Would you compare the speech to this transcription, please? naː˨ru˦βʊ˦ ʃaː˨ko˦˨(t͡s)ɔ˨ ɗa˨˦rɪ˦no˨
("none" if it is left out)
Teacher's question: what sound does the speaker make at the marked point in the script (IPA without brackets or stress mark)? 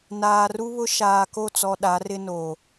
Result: t͡s